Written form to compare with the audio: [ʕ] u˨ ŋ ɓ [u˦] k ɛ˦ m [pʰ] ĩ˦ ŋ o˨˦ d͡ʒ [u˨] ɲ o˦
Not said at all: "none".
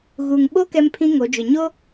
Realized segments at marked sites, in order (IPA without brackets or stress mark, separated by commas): ɣ, o˦, pʰ, ʊ˨